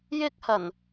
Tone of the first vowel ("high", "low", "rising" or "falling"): high